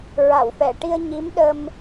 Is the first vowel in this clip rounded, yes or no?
no